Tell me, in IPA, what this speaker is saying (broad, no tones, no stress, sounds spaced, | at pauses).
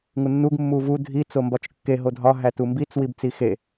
ŋ u nː u ɡ mː u v u dʱ i t͡s o m b ɒ t͡ʃ kː e ɦ o dʱ ɒ ɦ æ t u m b i t͡s w i b t͡s i x e